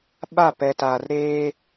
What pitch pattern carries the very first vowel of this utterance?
falling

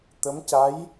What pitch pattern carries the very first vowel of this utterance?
rising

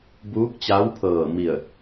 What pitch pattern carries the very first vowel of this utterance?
rising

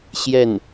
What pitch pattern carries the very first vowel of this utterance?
falling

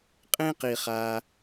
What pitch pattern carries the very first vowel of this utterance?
high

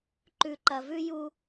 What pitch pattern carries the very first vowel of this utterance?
low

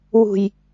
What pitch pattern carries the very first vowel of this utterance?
low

